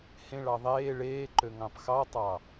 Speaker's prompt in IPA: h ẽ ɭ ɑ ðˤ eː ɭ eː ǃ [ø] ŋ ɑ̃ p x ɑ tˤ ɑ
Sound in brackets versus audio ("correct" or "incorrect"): correct